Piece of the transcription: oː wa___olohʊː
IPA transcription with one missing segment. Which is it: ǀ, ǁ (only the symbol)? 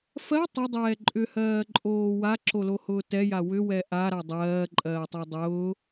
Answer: ǁ